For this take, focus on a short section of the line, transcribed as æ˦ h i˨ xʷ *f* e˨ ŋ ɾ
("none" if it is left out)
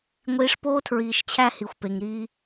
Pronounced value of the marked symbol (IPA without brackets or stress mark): p